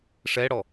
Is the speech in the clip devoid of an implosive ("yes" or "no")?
yes